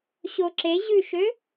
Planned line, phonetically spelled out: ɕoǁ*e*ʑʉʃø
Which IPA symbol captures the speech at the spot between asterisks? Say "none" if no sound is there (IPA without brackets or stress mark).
e